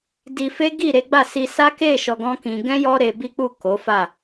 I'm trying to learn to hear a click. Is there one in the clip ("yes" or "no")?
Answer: no